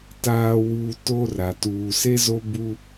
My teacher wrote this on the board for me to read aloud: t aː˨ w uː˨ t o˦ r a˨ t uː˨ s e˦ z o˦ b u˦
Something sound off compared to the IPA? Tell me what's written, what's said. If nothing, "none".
none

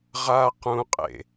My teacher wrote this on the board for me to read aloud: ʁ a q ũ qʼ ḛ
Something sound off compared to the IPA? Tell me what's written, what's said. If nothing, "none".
none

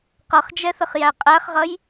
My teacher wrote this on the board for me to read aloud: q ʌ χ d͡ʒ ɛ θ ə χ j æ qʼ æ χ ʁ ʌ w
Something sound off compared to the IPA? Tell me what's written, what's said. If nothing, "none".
w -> j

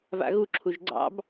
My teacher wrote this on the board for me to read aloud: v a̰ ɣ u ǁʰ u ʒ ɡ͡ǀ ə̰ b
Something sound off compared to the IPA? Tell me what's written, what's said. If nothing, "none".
ə̰ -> ɑ̰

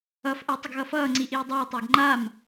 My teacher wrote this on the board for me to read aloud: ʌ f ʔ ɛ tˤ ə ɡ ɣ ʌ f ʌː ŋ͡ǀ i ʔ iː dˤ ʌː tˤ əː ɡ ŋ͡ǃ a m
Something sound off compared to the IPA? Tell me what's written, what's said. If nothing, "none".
none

